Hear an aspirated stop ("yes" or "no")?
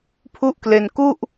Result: yes